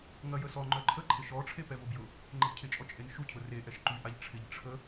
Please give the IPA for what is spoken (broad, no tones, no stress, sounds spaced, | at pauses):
ŋ ɐ j ə s ɔ ŋ͡ǃ œ ǃʰ ə ǃʰ ɪ ʃ ɔ ʈ͡ʂʰ e p ɛ v ʊ b j ʊ | ŋ͡ǃ ə b cʰ ɪ t͡ʃʼ ɔ t͡ʃʼ e n ʃ u cʰ ʊ r e ʔ ɛ ʃ ǃ y ʔ a ʎ ʈ͡ʂʰ ɪ ʎ ʈ͡ʂʰ ə